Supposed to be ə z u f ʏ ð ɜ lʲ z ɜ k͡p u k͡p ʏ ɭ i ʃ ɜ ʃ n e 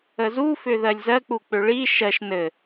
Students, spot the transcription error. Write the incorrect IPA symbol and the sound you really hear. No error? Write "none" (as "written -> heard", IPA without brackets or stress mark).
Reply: e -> ɘ